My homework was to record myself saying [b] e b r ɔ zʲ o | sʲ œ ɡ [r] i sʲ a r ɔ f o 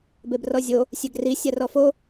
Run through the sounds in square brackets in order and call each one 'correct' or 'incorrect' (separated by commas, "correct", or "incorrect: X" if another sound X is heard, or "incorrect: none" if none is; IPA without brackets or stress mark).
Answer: correct, correct